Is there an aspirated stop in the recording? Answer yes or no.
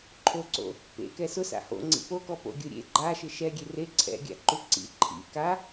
yes